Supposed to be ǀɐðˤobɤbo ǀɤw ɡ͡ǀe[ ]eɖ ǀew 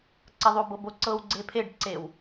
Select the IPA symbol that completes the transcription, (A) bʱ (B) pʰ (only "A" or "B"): B